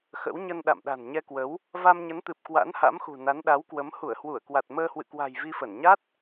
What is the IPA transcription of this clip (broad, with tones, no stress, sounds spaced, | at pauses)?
x ə̰˧˥ w ɲ ə˧ n ɗ a̰˧˨ m ɗ a̤˨˩ n ɲ ɛ˧ k w ə˨˦ w | v a˧ m ɲ ə˨˦ n t̪ ɨ˨˩ p̚ k w a̰˧˥ n h a̰˧˥ m x ṳ˨˩ n a˨˦ n ɗ a˨˦ w k w ə˨˦ m h u˧˩ ə̯ h w u˧˩ ə̯ k w a˨˩ t̚ m əː˧ h w ɨ̰˧˨ k w a̤˨˩ j v i˧ f ə˧˩ n ɲ a˦˥ t̚